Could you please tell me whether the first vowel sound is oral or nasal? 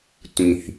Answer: nasal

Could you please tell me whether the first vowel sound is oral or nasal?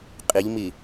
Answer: oral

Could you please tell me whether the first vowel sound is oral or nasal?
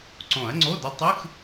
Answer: nasal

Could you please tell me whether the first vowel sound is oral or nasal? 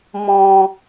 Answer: nasal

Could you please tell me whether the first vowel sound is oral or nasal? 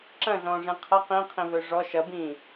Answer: nasal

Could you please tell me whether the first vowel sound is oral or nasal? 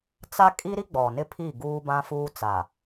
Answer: oral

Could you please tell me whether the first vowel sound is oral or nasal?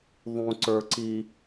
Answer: nasal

